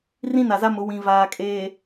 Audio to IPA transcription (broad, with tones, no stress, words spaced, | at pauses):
rĩ˦na˨za˦mʊ˨˦ wĩ˨vaː˨kʼeː˨